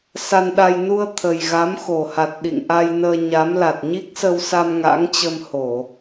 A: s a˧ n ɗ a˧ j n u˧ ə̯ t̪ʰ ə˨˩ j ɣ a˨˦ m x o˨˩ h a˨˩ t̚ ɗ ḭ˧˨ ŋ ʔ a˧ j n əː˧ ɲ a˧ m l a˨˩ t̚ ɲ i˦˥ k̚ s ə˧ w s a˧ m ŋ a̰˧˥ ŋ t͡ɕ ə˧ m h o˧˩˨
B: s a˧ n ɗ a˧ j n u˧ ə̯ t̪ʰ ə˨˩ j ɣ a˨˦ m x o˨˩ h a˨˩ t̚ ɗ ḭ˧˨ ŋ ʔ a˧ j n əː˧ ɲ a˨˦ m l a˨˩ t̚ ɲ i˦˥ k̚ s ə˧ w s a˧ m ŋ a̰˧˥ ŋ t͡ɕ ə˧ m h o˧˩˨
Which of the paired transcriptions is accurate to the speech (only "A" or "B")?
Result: B